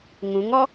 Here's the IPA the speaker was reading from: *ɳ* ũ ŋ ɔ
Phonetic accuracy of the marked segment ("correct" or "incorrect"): incorrect